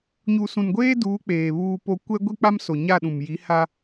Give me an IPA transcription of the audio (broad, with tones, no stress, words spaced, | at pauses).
ɲu˨sũ˨nɡʷeː˦duː˨˦ k͡peː˨βuː˦po˦ kʷɛ˦ ɡʷi˦k͡pa˦m so˨ɲa˦˨ɗũ˨m ji˨˦ha˦